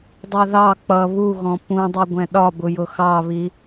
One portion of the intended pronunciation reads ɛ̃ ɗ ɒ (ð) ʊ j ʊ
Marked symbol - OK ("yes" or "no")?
no